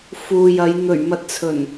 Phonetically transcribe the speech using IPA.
fuː˨jɐ˨˧j n̪ɵ˨˩ɥmɐ˨t̚t͡sʰɵ˨˩n

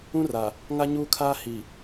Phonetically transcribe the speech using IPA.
ũ˦ra˨ | ŋa˦ɲuː˦ kʰaː˦ hi˨

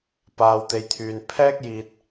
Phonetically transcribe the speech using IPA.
paː˨wt̪e˨jt̪ʰyː˨n pʰɛː˥k̚jiː˧t̚

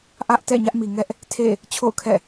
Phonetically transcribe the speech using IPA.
ʔä˦ʔtɛ̰˦˨ ɲä˦ʔmi˨ŋɛ˦ʔ | tʰḛ˦˨ | t͡ɕʰo̰˦˨ʊ̯ kʰɛ̰˦˨

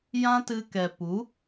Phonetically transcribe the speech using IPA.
jã˦tɨ˧kɛ˨ pu˨˦

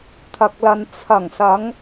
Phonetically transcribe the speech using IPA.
t̪ʰɐ˨k̚lɐ˨n t͡sʰɐ˨˩ŋsɐ˨˧ŋ

